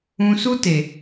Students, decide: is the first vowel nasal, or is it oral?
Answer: nasal